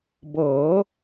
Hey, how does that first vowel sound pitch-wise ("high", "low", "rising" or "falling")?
rising